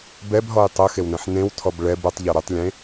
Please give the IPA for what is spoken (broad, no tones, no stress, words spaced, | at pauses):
bɛbɦɔj tˤɯxewnɛ̃ħ nẽwtʰɔb ɭɛb ɯtˤʎɔ ɾɯtˤlʲẽ